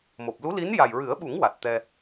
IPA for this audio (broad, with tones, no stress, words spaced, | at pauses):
mo˨˩p̚lu˧˥li˧˥n ja˨˩jɹɨ˨˩˦ə̯ɓu˨˩˦ŋ wa˨˩t̚t̪ɛ˧